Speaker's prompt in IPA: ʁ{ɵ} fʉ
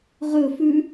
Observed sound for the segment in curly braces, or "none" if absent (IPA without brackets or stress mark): ɵ